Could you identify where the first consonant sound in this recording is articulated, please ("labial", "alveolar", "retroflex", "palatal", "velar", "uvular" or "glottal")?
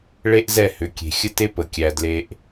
retroflex